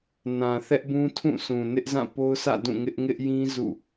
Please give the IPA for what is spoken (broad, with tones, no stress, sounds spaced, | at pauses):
n ã˨ θ ɛ˦ ʔ b ũ˦ tʰ ũ˦˨ sʰ ũ˨ n ɪ˦ ʔ z ã˦˨ p o˦ ʊ̯ sʰ ä̰˦˨ d ũ˦˨ ŋ ɪ˦ ʔ ŋ ɪ˦ ʔ j ĩ˦ z ṵ˦˨